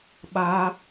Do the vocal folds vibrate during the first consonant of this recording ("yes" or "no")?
yes